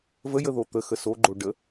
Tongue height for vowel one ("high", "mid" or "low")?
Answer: mid